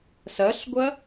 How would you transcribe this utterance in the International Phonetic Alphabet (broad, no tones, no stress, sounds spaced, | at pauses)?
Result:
s ɐ ɬ ɡʷ ɐ